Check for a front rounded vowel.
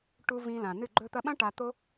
absent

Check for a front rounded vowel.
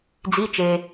absent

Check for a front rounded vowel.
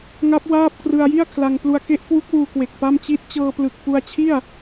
absent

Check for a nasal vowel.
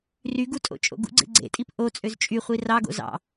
absent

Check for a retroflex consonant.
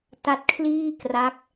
absent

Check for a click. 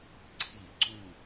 present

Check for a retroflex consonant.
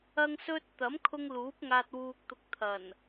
absent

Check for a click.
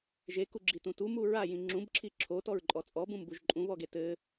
present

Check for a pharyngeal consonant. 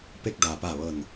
absent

